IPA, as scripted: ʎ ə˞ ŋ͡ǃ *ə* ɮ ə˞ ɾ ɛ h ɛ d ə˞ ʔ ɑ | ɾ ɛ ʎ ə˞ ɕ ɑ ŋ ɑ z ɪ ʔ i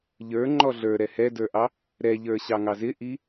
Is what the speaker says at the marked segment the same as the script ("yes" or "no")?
no